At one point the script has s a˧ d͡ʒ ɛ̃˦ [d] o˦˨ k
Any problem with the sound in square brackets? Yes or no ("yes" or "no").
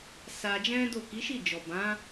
no